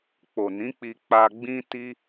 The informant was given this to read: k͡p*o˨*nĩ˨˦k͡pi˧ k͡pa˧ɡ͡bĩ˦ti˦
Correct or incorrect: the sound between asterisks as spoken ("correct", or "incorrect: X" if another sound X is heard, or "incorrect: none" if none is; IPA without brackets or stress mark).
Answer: correct